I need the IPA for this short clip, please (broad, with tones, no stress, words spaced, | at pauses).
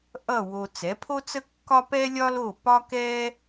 ʔʌ˥˩ wo˧ t͡sɛ˩˥pʰo˥t͡sə˥kːɒ˥ pɛ˥lʲɒ˥lo˥˩ pɒ˥kɛ˥